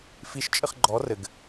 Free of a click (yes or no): no